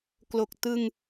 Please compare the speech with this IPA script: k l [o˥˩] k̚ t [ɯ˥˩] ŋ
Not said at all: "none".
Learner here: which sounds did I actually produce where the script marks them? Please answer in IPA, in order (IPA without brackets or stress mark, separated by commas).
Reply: o˨˩, ɯ˧